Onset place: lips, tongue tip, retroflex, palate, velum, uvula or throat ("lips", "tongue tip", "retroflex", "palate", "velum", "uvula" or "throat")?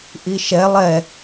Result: throat